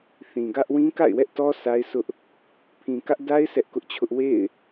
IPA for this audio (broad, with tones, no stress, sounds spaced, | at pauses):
θ ĩ˨ ɡ ä˦ ʔ w ĩ˦ k a̰˦˨ ɪ̯ w ɛ˦ ʔ t ɔ˦ sʰ a˦ ɪ̯ s ʊ˦ ʔ | pʰ ĩ˨ k ä˦ ʔ d a˦ ɪ̯ s ɛ˦ ʔ k ʊ˦ ʔ t͡ɕʰ ʊ˦ ʔ w ḛ˦˨ ɪ̯